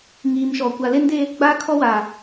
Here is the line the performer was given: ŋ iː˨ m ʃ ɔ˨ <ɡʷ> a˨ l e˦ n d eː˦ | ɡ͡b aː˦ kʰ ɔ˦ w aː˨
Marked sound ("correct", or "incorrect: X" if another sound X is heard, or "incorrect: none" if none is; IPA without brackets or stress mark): incorrect: kʷ